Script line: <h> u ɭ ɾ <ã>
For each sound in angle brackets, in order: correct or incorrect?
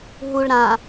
incorrect: ɦ, correct

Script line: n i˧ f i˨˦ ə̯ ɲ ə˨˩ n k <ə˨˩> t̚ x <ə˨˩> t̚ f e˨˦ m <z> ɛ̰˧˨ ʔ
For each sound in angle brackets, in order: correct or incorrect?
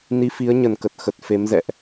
correct, correct, correct

